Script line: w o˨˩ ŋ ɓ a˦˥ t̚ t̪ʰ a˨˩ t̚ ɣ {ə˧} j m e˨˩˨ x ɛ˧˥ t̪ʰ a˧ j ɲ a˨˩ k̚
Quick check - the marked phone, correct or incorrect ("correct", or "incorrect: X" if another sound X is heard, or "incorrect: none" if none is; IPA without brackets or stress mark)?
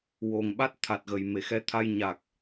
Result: incorrect: ə˨˩